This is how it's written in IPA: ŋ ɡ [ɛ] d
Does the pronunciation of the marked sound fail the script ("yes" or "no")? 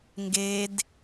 yes